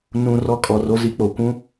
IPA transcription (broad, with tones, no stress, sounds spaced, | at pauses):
n ũ˨ r ɔ˦ kʼ ɔ˨ r o˦ z i˦ k͡p o˨ kʷ ũ˦